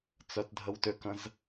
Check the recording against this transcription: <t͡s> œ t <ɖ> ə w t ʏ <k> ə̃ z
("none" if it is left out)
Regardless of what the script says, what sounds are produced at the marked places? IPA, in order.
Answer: t͡s, dʱ, k

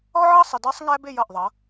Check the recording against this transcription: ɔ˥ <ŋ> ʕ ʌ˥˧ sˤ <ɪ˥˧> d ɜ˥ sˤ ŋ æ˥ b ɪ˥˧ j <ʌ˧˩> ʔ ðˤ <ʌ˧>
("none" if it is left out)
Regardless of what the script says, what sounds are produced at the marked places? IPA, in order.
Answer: none, ɪ˧, ʌ˧˩, ʌ˩˧

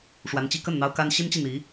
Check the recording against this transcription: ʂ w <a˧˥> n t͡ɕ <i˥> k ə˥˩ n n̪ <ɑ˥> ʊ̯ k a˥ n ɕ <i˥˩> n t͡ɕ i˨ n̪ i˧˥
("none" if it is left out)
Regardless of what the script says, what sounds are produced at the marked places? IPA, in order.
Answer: a˧˥, i˥, ɑ˥, i˥

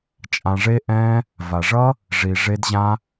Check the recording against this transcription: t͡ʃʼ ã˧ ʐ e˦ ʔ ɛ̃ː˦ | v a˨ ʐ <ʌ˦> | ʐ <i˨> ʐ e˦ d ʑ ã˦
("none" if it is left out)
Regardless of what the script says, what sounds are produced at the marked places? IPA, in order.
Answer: ʌ˦, i˨

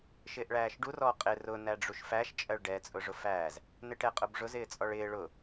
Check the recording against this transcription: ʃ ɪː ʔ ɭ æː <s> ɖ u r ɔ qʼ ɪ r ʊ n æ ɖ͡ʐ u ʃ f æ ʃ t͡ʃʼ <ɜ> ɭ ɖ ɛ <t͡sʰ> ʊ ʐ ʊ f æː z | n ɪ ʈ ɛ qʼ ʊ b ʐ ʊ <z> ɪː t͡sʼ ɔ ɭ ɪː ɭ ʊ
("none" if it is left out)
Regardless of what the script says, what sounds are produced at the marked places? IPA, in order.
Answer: ʃ, ɜ, t͡sʼ, z

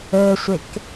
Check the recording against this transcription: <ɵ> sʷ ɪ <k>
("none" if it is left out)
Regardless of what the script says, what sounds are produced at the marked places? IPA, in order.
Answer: ɵ, k

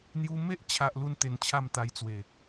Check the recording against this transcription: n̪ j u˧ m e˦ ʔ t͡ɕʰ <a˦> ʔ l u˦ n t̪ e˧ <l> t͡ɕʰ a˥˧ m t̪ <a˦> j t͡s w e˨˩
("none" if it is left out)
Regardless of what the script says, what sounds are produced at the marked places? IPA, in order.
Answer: a˦, n, a˧

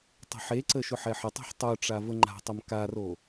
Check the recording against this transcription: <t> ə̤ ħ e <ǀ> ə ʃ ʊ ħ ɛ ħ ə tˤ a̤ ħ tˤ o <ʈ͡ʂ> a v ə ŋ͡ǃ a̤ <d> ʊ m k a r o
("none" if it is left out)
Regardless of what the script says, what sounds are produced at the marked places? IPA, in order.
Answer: tˤ, ǀ, ʈ͡ʂ, tˤ

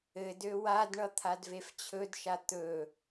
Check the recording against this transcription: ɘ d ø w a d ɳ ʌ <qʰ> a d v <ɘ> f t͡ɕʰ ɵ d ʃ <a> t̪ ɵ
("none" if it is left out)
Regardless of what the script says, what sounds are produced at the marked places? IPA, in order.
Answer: t̪ʰ, e, a

